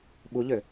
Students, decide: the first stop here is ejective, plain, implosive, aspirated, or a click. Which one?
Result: implosive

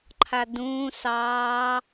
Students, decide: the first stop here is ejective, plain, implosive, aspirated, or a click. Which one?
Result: click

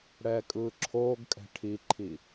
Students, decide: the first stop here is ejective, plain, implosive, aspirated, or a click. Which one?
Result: ejective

